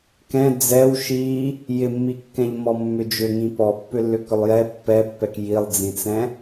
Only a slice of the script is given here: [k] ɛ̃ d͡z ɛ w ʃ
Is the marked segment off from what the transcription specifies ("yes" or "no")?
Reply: no